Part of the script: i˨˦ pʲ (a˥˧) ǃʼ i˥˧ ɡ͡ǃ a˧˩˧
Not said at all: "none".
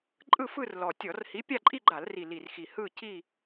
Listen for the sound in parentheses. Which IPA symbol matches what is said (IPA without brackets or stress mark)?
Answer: a˥˧